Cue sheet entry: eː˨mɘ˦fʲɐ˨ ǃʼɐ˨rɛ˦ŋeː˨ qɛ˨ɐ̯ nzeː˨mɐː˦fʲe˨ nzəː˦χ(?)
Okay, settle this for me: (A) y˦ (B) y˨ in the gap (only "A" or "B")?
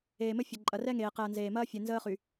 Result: B